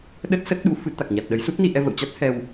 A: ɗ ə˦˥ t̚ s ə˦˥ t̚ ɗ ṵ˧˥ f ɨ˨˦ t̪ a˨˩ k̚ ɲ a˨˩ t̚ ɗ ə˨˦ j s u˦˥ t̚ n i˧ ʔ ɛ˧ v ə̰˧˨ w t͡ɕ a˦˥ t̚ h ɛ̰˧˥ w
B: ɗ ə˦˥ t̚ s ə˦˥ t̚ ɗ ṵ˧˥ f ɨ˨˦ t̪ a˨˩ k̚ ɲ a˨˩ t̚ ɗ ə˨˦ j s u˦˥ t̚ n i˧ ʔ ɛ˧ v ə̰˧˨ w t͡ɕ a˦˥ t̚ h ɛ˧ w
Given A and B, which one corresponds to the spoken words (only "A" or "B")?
B